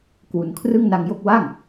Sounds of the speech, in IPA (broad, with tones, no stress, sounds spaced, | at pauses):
k w u˩˦ n kʰ r ɯ˥˩ ŋ n a˧ ŋ j o˥˩ k̚ w a˥˩ ŋ